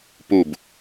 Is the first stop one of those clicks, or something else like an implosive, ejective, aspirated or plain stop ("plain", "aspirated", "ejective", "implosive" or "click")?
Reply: plain